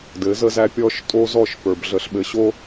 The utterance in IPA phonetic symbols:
d ɘ˨˦ z ə˦ z æ˦ pʲ ɔ˦ ʃ tʼ o˦ z ɔ˦˨ ʃ p ə˞˨ b ɮ ə˨ ɬ ɓ ɘ˨ ɕ o˦

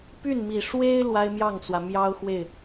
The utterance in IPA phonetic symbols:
p y˥˩ n m i˨˩ ʂ w e˥ ɪ̯ l w a˥ ɪ̯ m j ɑ˥˩ ŋ t͡s w ä˩ m j ɑ˥ ʊ̯ x w e˥˩ ɪ̯

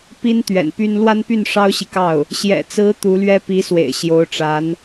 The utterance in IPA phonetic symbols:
p i˥ n t̪ ɥ ɛ̰˨˩ n p y˥ n l w a˥ n p y˥˩ n ʂ ɑ˥ ʊ̯ ɕ i˨ k ɑ˥˩ ʊ̯ | ɕ j ɛ̰˨˩ t͡s ɹ̩˧˥ t̪ u˧˥ l ɥ ɛ˥ p i˧˥ s w ḛ˨˩ ɪ̯ ɕ j o˧˥ ʊ̯ ʈ͡ʂ a˧˥ n

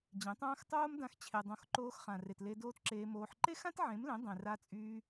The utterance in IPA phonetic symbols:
d͡ʑ ẽ˨˦ tˤ ãː˦ x tˤ oː˦ m d ã˧ x t͡ɕʰ e˨ dˤ õ˧ x ǃ oː˧ x χ ã˨ r e˨ t l e˧ d oː˧ t ǁ eː˧ m oː˧ ħ ǃ e˦ x ã˦ t ʕ ẽ˨˦ m l ẽ˨˦ dˤ ẽ˨ r a˧ t͡sʼ yː˧

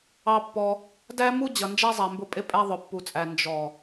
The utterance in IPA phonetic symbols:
ɑ˧ pː ɔ˧ | d æ˦ m u˦ d͡ʑ ʌ˨ n d͡ʒ æ˦ zˤ æ˨ m b ʊ˧ pʼ ɪ˧ pʼ æ˧ ðˤ ʊ˨ pː u˨ t͡sʼ æ˨ n d͡ʒ ɔ˨

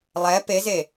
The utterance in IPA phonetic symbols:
lˠ ɛ p e z e

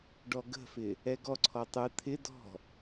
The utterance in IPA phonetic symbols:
ɖ ɔ ɡ ə̤ f ɪ | ɛ ɡ ɔ ǀʰ ɔ tˤ ɯ t̪ʰ ɪ d ɔ̤

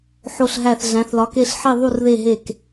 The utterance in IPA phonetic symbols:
ħ o˧˩ ɬ ɦ æ˧˩ θ ɮ æ̃˩˧ θ l ɒ˩˧ k e˧˩ ɬ ħ i˧˩ ðˤ u˧˩ r ð e˧˩ ɦ e˧˩ k

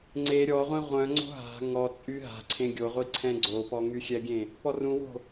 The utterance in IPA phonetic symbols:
ŋ͡ǀ e ɾʲ ɔ ʁʷ ẽ ʁʷ œ̃ ŋ͡ǀ o̤ ɦ a̤ ŋ ɔ t͡sʼ y ɦ a̤ ǀʰ ẽ ɡʲ o ʁʷ i ǀʰ ɛ̃ ɡ͡ǀ o p ɔ ŋ y xʲ ɛ ɡʲ ẽ | p ɔ r ũ w o̤

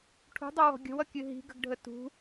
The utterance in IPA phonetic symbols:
ʈʰ ṳ dˤ ʌ w ɔ̤ ɡʲ ə̤ w ʌ kʲ ɨ ɦ i̤ ɡ ə̤ ɡ ɖʱ ə t ṳ

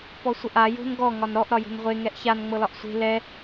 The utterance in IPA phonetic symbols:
p ɔ sʷ ə ʔ a j o̤ n ɡ ɔ ŋ ɒ n ɾ ɔ ʔ ɾ ɒ j o̤ n ʁʷ e ŋ ɛ ʔ ç a n ŋ͡m ɤ l ɒ ʔ sʷ e̤ l ɛ

